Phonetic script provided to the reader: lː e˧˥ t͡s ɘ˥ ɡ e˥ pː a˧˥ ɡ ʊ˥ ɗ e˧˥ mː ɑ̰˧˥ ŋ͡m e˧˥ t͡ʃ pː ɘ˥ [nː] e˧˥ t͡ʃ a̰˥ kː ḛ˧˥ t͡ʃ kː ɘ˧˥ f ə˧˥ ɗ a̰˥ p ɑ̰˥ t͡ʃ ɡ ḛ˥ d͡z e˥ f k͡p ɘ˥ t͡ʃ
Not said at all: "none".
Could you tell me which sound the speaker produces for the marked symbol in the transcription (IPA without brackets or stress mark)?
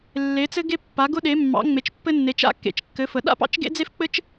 nː